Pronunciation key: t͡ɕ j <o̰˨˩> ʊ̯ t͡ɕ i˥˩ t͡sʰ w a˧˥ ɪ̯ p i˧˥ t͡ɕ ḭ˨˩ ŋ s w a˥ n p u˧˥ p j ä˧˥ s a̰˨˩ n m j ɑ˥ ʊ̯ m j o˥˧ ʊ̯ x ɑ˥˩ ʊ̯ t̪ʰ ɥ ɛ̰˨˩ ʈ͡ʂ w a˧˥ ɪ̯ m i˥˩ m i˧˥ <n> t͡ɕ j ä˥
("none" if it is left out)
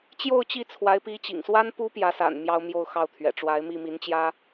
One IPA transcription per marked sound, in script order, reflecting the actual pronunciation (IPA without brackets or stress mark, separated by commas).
o˥˧, n